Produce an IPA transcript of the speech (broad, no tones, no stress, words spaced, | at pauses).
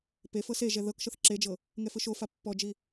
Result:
pefɤ se ʒɛðɤkʃɤθ ǁed͡ʒɤ | ŋɛfɯʃofa pːɔd͡ʒi